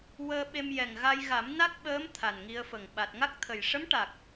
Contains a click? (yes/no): no